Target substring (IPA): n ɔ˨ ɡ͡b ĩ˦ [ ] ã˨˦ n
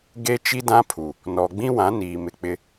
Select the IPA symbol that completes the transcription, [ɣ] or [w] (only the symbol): w